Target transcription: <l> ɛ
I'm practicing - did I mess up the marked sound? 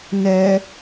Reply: yes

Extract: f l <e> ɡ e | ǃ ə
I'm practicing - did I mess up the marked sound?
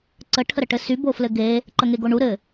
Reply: yes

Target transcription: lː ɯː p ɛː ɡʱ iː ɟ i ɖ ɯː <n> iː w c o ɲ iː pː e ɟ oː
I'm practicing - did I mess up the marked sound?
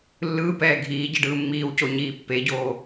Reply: yes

